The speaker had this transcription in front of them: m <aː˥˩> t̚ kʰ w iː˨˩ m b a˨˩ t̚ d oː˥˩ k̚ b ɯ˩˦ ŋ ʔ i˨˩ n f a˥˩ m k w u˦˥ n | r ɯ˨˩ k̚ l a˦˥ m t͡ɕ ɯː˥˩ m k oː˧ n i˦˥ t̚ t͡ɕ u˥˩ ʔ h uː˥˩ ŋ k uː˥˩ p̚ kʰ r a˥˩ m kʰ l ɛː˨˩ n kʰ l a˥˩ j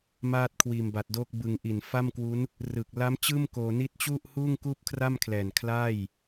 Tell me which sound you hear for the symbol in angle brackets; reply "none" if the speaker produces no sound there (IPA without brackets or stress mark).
aː˥˩